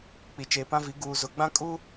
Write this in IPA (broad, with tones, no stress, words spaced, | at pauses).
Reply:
k͡pi˨t͡ʃeː˨pã˦vi˨˦ ɡuː˨zʊ˨ɡ͡bã˦ kʼu˦